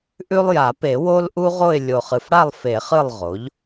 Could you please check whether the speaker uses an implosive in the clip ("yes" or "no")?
no